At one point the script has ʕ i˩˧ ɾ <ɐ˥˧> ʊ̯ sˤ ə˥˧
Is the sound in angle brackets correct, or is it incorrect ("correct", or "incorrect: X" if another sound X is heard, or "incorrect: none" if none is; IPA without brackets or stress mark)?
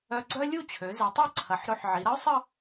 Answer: incorrect: ɐ˥